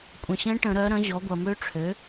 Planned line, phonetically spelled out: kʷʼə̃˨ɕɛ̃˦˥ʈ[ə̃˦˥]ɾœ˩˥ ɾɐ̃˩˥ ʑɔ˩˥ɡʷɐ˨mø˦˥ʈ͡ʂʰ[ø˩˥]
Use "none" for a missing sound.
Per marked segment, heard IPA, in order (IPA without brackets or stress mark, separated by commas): ə̃˨˩˦, ø˩˥